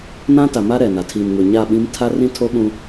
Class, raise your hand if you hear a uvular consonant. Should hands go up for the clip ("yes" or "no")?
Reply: no